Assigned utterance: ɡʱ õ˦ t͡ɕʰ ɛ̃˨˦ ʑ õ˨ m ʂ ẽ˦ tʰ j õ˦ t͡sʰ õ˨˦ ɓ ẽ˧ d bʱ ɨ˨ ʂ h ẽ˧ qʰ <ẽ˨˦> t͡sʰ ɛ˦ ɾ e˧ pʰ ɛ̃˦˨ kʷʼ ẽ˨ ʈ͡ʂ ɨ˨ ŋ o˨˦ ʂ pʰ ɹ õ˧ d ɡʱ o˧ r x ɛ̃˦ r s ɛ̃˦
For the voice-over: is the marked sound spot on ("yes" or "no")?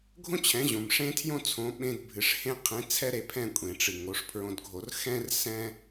yes